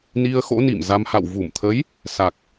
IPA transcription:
n i˧ ə̯ x o̰˧˥ n ḭ˧˨ m z a˧ m h a̰˧˨ w v u˧˩ m t̪ʰ ə˨˦ j | s a˨˩ k̚

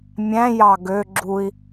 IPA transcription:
mʲ æ̃ j ɑ ɡ ø ɡ͡ǁ u i̯

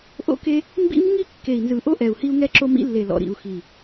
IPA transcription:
ʔ o̰˦ k e˦ | m b ḭ˦ m ŋ i˦ kː e˨ i̯ n z ɯ˨ ʔ o˦ ʔ ɛ˨ u̯ h i˦ u̯ ŋ ɛ˦ ǁ o˦ m ḭ˦ lː e˨ l ɔ̰˨ ɾ ḭ˨ u̯ x i˨

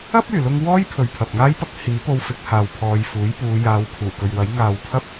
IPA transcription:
ɐ˥ p̚ yː˨˩ l ʊ˧ ŋ w ɔː˥ j pʰ ɵ˨ ɥ pʰ ɐ˨ p̚ ŋ aː˥ j p ɐ˥ k̚ h iː˨˥ p o˧ w f ɪ˨˥ k̚ h aː˨ w pʰ ɔː˨ j f uː˨˥ j p uː˨˧ j aː˨˧ w pʰ uː˨˩ k ɵ˨ ɥ w ɐ˨˥ j ŋ aː˨ w pʰ ɐ˥ p̚

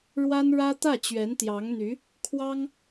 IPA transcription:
ɻ w a˥ n ɻ ä˥ t̪ ä˥˩ t͡ɕ ɥ ɛ˧˥ n t̪ j ɑ˧˥ ŋ n̪ y˧˥ | kʰ w ɑ˥ ŋ

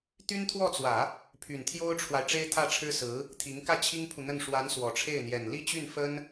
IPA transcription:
t̪ y˥ n t̪ʰ w ɔ˥˩ t͡s w ä˨˩˦ | pʰ y˨˩ n t̪ʰ j o˥ ʊ̯ ʈ͡ʂʰ w a˨ ɪ̯ ʈ͡ʂ e˥ ɪ̯ t̪ʰ ä˥˩ ʈ͡ʂʰ ɻ̩˥ s ɹ̩˧˥ | t̪ʰ i˧˥ ŋ k ä˥˩ t͡ɕʰ i˥ ŋ pʰ u˨ n̪ ə˥˩ n ʂ w a˧˥ n s w ɔ˨˩ ʈ͡ʂʰ e˥˩ ɪ̯ n̪ j ɛ˨˩ n l i˥˧ t͡ɕ y˥˩ n f ə˥ n

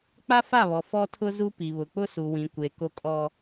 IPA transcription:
k͡p a˦ f a˦˨ β ɔ˨ f ɔ˦ tʰ ʊ˦ z u˦ p i˨ β ʊ˨ k͡p ʊ˦ s u˨ w ĩ˨ kʷ e˨ k o˦ kʼ ɔ˦

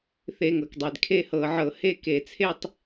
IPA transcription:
θ e˧˩˧ ŋ ɤ˩ k dˤ e˩ d kʰ e˥˧ h ɤ˧˩˧ ʕ ɤ˧˩˧ h e˥˧ k e˧˩˧ t͡sʰ e˥˧ tˤ

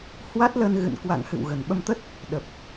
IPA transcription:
h w a˦˥ t̚ l ə˧ n ɣ ɨ̰˧˨ n k w a̰˧˨ ŋ h ɨ̰˧˨ w ɣ ə˨˩ n ɓ ə˧ m t̪ ə˦˥ t̚ | ɗ ə˨˩ p̚

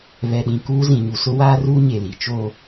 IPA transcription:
β ɛ˨ ɗ ĩ˨ k uː˦ z ĩ˨ ɲ u˨ s ʊ˦ w aː˦ r uː˦ ɲ e˨ l i˨˦ t͡ʃ oː˦

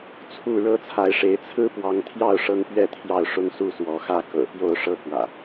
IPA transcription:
t͡sʰ u˥˨ ɻ ɤ˦ t͡sʰ a˨˦ ɪ̯ ʂ e˨˦ ɪ̯ t͡sʰ ɹ̩˦ p w ɑ˨˦ ŋ t̪ʰ j ɑ˥˨ ʊ̯ ʂ ɤ˦ ŋ p ɥ ɛ˥˨ t̪ʰ j ɑ˥˨ ʊ̯ ʂ ʊ˦ ŋ s u˦ s w ɔ˨˦ x ä˥˨ k ɤ̰˨˩ p j o˥˨ ʊ̯ ʂ ɤ˦ k w ä̰˨˩

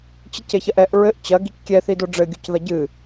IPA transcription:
t͡ɕ i c e ç ɐ ʔ ɛ ʔ ɹ ɘ ʔ t͡ɕ ɐ ɡ i c kʲ ɛ θ i d o ɖ͡ʐ ɘ ɡʲ u c ð ɐ ɟ ɨ

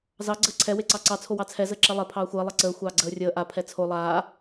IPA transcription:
z ɑ ɡ͡ǀ əː ǀʰ ɛ w e ǀ ɑ ǀ ɑ t͡sʰ o w ɑ t͡sʰ ɛ z əː ǁ ɛ lˠ ɛ pʰ ɑː xʷ əː lˠ ɛ ǀ əː xʷ ɑː ɡ͡ǀ əː rʲ əː ʔ a pʰ ɛ t͡sʰ o lˠ aː

